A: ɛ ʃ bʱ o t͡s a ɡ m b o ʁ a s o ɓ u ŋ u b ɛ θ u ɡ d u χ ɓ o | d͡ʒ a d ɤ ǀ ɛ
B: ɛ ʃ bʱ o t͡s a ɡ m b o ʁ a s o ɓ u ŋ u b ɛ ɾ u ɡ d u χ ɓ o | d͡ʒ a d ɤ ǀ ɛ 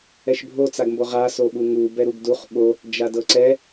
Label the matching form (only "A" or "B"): B